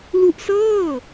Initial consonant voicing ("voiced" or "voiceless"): voiced